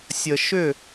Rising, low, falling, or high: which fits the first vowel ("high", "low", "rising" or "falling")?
low